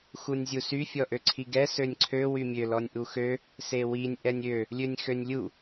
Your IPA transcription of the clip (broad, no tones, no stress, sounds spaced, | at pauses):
x u nʲ zʲ u s y fʲ ɔ ʔ ø ǀʰ i ɡ ɛ s ø nʲ ǀʰ ø w y mʲ ø l ɔ nʲ ʔ u x ø | s e w i nʲ ʔ ɛ nʲ ø | lʲ ø nʲ x ø nʲ lʲ u